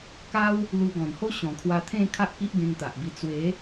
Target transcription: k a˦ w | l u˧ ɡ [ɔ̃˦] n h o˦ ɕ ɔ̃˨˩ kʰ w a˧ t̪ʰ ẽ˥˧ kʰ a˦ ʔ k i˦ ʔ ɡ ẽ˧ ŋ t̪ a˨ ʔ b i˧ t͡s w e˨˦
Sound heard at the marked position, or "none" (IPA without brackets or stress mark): ɔ̃˨˩